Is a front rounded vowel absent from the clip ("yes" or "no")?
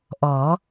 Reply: yes